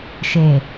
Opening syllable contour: low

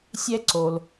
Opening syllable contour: high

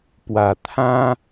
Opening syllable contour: low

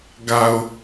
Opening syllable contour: low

